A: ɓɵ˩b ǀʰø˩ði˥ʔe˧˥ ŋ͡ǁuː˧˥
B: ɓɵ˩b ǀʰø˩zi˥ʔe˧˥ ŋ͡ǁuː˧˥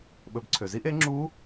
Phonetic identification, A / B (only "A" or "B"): B